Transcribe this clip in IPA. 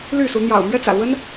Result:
ly˥˨su˨˦ n̪jɑ̰˨˩ʊ̯mɥɛ˦t͡sä̰˨˩ lwə˦n

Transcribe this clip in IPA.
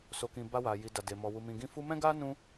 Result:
so˧kĩ˧ ba˦wa˧ ji˧da˧de˧mɔ˧ wu˧mĩ˧ɡĩ˦ fu˦ mɛ̃˦ɡa˦ nũ˦

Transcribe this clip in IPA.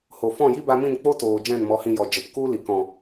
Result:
ho˨fɔ̃˦˨ji˦ ba˧mĩ˦˨n k͡po˦toː˨ d͡ʒɛ̃˦˨nmɔ˨˦hĩ˧jɔ˨ d͡ʒə˨pku˦li˨ kɔ̃˨

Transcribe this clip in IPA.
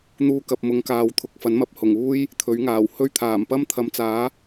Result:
n̪uː˧kɐ˨p̚ mʊ˨˧ŋkaː˨wt̪ʰʊ˨k̚ fɐ˨˥nmɐ˨˥p̚ hʊ˨˩ŋ uː˥j | t̪ʰɵ˨˥ɥŋaː˨˩w hɵ˧ɥt̪ʰaː˨˩m pɐ˥mt̪ʰɐ˨˥mt͡saː˨˥

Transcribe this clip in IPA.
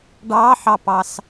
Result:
ɖɑħɑpɑs

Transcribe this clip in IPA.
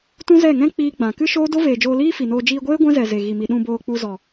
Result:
tũ˦zɛ˦˨ŋɛ̃˦ k͡piː˦ɡ͡bã˨ kɨ˦ʃoː˦do˦ veː˨d͡ʒoː˧liː˦ fi˨ noː˧ d͡ʒiː˧ɡʷeː˦ ɡʷɛ̃˦zɛ˨ ze˨ɣi˨mi˨ ɗũ˨boː˨ k͡pu˧zɔ˨

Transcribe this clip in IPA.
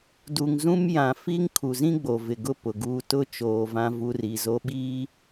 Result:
du˨ŋ zũ˦m jã˨fi˦ŋ kʰu˨zĩ˦ ɡ͡bo˨vɪ˨ ɡʊ˦ pʊ˨ɡuː˦ tʊ˦ t͡ʃoː˨vã˦ vu˦ri˨zo˦ ɓiː˦

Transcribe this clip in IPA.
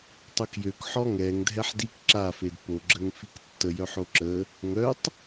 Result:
tˤœkjøkħɔ ŋɛŋdʱɛħ dik ǁafed po ɡ͡ǁəŋfiktːə jœħoǁə | ŋœtˤ

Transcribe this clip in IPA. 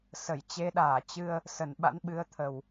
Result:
sə˧˩jt͡ɕe˨˦ɗaː˧˩ t͡ɕɨ˧ə̯ | sə˧˩nɓa̰˧˥nɓɨ˨˦ə̯ t̪ʰə˨˩w

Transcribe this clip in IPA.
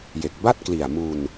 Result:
je˨˩k̚ ba˥˩t̚kli˨˩a̯mu˧n

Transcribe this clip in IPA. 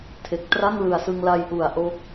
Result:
tʰe˨˩k̚tra˥˩ŋ lɯ˨˩a̯sɯ˧ŋ la˧jʔu˨˩a̯ ʔo˦˥k̚

